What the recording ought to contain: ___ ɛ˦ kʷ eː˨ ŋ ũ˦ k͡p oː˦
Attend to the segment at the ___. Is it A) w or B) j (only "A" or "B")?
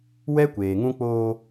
A